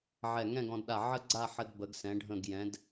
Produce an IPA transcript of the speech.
ʕ ɛ˧˩ ŋ ɛ̃˥˧ ɡ ɔ̃˧ d ɗ a˧˩ ʕ ə˥ ɡ͡ǀ a˥˧ ħ ə˧ d b ə˩˧ ɡ s ɛ̃˩˧ ɖʱ ə̃˧˩ ɡ j ɛ̃˩˧ d

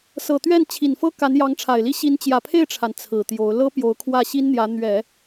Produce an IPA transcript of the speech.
s ɤ˨˩ t̪ ɥ ɛ˥˩ n t͡ɕʰ i˨˩ n f ɤ˥ k a˧˥ n j ɑ˧˥ ŋ ʈ͡ʂʰ a˨˩ ɪ̯ l i˥ ɕ i˧˥ n t͡ɕ j ä˨˩ pʰ e˥˩ ɪ̯ ʈ͡ʂʰ a˩ n t͡sʰ ɹ̩˨˩ t̪ j o˧˥ ʊ̯ l ɤ˥ p j o˧˥ ʊ̯ kʰ w ä˥˩ ɕ i˥ n n̪ j ä˧˥ n̪ ɥ ɛ˨˩˦

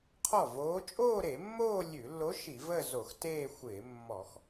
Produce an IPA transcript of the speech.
qʰ ɔ˥˩ v oː˧˥ t͡ʃʼ oː˥˧ ɾ e˧˩˧ mː oː˥˧ lʲ ʉ˧˩˧ lː o˧˥ ʃ i˧˩˧ v ə˥˧ z o˧˩˧ x t eː˥˧ xʷ ɪː˧˩˧ mː ɔ˧˩˧ x

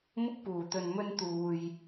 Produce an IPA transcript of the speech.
m ʊ˥ k̚ p uː˨ t̪ ɵ˧ n m ɵ˥ n t̪ uː˧ j

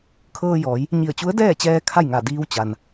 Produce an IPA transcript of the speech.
kʰ ɤː˧ j ɔː˩˧ j | ɲ i˧˩ ə̯ t͡ɕ u˧˥ ə̯ d ɛː˥˨ t͡ɕ ɛː˧ kʰ a˥˨ j ŋ a˧˩ d iː˧ w t͡ɕ a˩ n

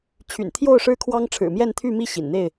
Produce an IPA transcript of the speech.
t͡ɕʰ y̰˨˩ n t̪ʰ j o˥˨ ʊ̯ ʂ ɻ̩˦ kʰ w ɑ˦ ŋ ʈ͡ʂʰ ɻ̩˨˩ m j ɛ˥˨ n t̪ʰ y˥˨ m i˥˨ ɕ ḭ˨˩ n n̪ e˥˨ ɪ̯

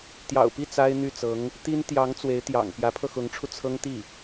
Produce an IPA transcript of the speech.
t̪ j ɑ̰˨˩ ʊ̯ p i˥˩ t͡s a˥ ɪ̯ n̪ y˥˩ t͡s ɤ˧˥ ŋ | t̪ i˥ n t̪ j ɑ˧˥ ŋ t͡s w e˧˥ ɪ̯ t̪ j ɑ̰˨˩ ŋ p j ä˧˥ pʰ ɤ˧ x ʊ˧˥ ŋ ʈ͡ʂʰ u˧ t͡sʰ ɤ˥ ŋ t̪ i˥˩

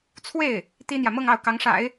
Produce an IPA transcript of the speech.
t͡sʰ w e˥˩ ɪ̯ | t̪ i˥ n̪ j ä˨ m ɤ˥˧ ŋ ɑ˥˩ ʊ̯ k ɑ˧˥ ŋ ʂ a̰˨˩˦ ɪ̯

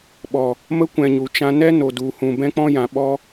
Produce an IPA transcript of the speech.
ɓ ɔ˨ | m ə˧ kʷ ɛ̃˨ ɲ u˨ t͡ʃ ã˧ n ɛ˦ n o˨ d u˨ h ũ˨ b ɛ̃˦ k͡p ɔ̃˦ j ã˧ ɓ ɔ˦

